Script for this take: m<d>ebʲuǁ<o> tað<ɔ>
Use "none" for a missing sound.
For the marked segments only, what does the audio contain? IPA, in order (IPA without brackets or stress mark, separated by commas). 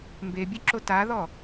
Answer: b, o, ɔ